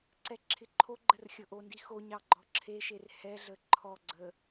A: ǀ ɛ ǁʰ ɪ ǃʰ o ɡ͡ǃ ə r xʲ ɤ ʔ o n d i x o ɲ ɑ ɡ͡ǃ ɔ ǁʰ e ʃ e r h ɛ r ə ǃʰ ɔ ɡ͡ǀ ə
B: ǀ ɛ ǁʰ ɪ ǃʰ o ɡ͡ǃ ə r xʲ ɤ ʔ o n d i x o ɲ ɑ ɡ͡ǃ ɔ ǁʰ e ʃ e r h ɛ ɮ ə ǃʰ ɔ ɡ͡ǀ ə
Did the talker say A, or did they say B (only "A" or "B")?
B